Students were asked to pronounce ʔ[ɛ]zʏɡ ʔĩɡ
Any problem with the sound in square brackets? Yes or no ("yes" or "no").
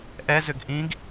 no